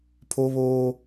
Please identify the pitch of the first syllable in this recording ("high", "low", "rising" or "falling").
high